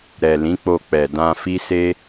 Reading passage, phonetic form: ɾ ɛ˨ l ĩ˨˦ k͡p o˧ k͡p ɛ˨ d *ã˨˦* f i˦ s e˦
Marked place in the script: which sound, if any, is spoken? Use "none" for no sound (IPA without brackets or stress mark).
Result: ã˧